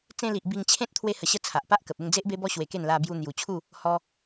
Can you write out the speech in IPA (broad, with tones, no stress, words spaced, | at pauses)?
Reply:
t͡sẽ˧li˨ʔ bi˧ŋt͡ɕʰẽ˦t̚ t̪ʰwe˧hə˨˩ɕə˧ t͡sʰa˨ʔpa˦ʔkə˨p̚ e˥˧ŋd͡ze˦ʔbe˦bɔ˦ ɕwe˧ke˥˧n la˧ bju˧n̪ju˨˩t͡ɕʰu˥˧ | hɔ˧